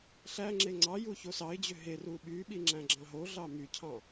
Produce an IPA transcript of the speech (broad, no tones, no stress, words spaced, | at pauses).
ɬæŋ͡ǁe ŋ͡ǀɑ juçosɑɪ̯d͡ʑø ɦe ruɓy ɓiŋ͡ǁæ̃ɡ͡ǁɑ̃ɦo ɮɑmycʰɑ̃